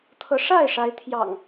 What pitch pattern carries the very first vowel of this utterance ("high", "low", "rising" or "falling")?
rising